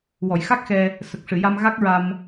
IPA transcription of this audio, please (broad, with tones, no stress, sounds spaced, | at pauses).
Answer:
w ɔ˨˩˨ j x a˦˥ k̚ x ɛ˧ | s ə˨˩ k̚ ʂ ɨ˨˩˨ j a˧ m ɣ a˦˥ k̚ ɹ a˧ m